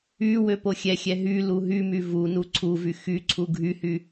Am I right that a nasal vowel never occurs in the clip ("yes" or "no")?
yes